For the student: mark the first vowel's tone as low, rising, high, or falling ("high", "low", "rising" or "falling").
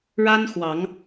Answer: high